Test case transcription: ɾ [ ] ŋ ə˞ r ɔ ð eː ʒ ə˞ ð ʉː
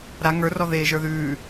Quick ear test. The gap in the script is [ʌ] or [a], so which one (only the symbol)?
a